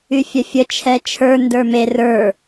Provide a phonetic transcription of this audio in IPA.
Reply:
y fʲ œ fʲ ə t͡ʃʰ ɛ t͡ʃʰ ə˞ n d ə˞ m e r ə˞

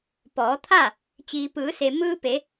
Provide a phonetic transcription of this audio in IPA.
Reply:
p ɔː˩˧ t̪ʰ a˥˨ | t͡ɕ iː˩ p ɯː˩˧ s e˩ m ɯː˧ p e˩˧

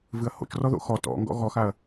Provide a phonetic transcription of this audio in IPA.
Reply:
v ɨ ɐ̯ h o̰ t͡ʃ r ɔ ð o̰ x ɔ t ɔ̰ ŋ ɡ ɔ̰ ɣ ɔ x a ɐ̯

